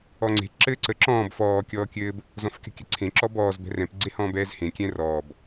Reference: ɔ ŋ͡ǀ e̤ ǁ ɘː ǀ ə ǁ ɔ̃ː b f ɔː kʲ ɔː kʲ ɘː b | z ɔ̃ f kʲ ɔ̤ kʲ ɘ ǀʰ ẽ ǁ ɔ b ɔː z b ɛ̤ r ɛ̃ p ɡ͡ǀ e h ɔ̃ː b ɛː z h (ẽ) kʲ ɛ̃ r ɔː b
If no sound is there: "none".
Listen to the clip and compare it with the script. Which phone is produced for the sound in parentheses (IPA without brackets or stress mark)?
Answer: ẽ